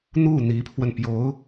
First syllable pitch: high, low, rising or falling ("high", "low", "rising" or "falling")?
falling